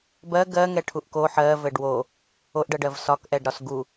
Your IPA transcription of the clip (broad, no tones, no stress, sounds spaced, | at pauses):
b ɜ ɡ ɜ ŋ ɛ ʈʰ u ʔ k o ħ ɜ v ɘ ɖ w o | o ʔ ɖ ɜ ɖ ɜ v s ɒ k ʔ ɛ ɖ ɾ ɒ s ɡ u